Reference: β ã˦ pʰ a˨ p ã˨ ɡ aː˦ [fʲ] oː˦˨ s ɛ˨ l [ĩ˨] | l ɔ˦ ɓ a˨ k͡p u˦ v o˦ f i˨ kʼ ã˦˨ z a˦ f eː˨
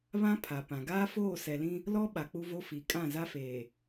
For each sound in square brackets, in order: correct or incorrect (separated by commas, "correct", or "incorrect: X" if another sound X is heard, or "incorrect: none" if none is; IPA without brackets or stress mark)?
incorrect: f, incorrect: ĩ˦